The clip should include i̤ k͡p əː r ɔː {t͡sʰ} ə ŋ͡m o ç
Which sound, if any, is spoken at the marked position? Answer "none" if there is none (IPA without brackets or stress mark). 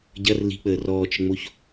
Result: t͡ʃ